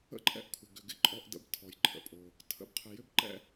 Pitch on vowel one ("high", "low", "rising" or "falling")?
high